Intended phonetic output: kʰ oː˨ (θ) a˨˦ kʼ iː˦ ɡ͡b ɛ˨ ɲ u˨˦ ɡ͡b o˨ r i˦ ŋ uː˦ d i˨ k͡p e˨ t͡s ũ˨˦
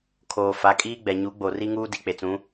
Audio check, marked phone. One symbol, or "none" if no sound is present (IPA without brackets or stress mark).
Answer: f